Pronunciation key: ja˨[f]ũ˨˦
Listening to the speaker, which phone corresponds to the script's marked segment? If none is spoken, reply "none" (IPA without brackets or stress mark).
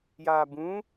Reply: b